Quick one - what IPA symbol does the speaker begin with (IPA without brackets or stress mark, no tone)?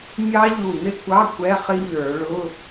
mʲ